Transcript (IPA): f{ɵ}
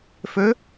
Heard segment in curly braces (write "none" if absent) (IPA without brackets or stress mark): ɵ